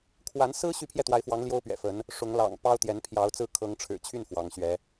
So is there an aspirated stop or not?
yes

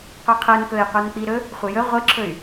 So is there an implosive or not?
no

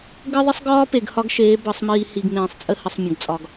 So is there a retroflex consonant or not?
no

